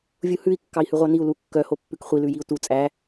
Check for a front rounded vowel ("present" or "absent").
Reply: present